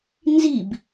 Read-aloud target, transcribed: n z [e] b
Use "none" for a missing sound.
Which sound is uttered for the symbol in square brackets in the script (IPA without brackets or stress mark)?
i